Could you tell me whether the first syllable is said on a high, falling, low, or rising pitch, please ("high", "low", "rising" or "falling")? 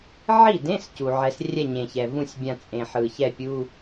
falling